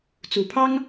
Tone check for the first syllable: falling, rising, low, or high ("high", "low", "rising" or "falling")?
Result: low